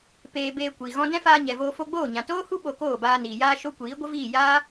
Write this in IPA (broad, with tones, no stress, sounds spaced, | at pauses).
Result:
p eː˧ b eː˧ kʷ i˨ ɣ ɔ̃˦ d ɛ̃˦ f aː˧ ɲ ɛ˨ v oː˧ f o˧ ɡ͡b oː˦˨ ɲ ã˨ t oː˦ h u˦ ɓ o˧ k oː˦˨ b aː˧ n iː˨ j aː˧ ʃ o˦ kʷ iː˨˦ ɡʷ ə˦ v iː˦˨ j a˦